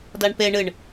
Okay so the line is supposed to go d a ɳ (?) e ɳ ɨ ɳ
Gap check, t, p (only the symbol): p